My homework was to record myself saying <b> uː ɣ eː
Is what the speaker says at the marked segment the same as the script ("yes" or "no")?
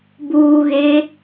yes